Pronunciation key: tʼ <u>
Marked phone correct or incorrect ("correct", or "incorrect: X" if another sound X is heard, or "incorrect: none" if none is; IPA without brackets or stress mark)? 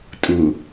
correct